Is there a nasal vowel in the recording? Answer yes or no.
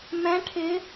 yes